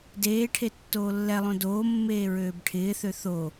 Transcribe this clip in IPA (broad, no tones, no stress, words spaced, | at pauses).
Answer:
deːʈʰe tːoːlːɛlˠõ doːmːeː ɹøːbʈʰɪːθø θo